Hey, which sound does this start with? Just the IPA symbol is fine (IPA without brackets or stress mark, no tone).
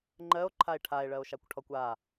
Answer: ŋ͡ǃ